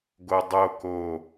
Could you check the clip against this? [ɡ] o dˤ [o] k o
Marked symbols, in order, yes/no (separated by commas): yes, yes